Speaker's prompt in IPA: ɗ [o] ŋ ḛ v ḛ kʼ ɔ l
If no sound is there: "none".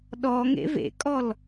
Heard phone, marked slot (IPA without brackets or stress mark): ɔ